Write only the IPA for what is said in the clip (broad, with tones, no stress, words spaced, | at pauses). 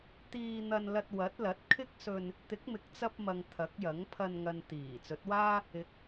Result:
t̪iː˧n̪ɐ˧nlɐ˧t̚ wɐ˨˥t̚lɐ˨˥t̚ kʰɪ˥k̚sɵ˧n | t̪ɪ˨˥k̚mɪ˨k̚t͡sɐ˧p̚mɐ˨ŋ t̪ʰɐ˨˥k̚jɐ˨˥ŋpʰɐ˧n ŋɐ˨n t̪iː˨˩ t͡sɵ˨˥t̚waː˥ | ɪ˨˥k̚